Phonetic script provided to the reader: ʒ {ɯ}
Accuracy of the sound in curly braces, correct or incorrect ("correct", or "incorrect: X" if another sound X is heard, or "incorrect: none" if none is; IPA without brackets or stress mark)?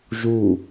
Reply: incorrect: u